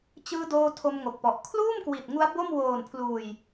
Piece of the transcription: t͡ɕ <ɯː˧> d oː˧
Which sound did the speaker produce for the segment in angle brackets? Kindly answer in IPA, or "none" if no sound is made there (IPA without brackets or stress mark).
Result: ɯː˧